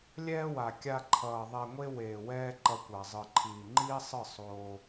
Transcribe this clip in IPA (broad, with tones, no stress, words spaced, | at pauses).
lʲɛː˦wa˨ kʲa˧ǃʰʌː˨ ðˤɛ˨ŋʷe˧ weː˨ wɛː˦ǃʌ˧kʷa˨ zˤɯ˨ǃʰiː˨ŋ͡ǃiː˦sˤɯ˦˨ sˤoː˧